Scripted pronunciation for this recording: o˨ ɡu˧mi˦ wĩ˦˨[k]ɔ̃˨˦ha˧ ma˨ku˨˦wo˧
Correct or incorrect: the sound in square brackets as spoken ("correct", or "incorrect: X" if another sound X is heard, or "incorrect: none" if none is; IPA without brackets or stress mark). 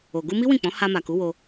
incorrect: k͡p